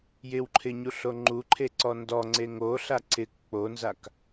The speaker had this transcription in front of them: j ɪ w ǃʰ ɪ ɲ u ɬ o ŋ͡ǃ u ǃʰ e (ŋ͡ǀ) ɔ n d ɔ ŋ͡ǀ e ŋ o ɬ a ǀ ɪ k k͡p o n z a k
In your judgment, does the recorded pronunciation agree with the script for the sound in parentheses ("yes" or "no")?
no